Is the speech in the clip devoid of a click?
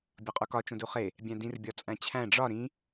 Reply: yes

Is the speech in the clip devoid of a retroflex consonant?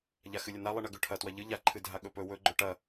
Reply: no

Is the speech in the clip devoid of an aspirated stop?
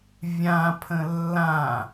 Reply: no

